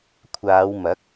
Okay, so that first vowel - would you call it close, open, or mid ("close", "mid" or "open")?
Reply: open